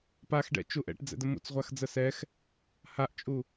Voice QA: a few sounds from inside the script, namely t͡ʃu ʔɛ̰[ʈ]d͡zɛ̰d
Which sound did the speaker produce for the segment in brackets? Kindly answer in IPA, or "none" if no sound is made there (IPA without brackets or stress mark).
ʈ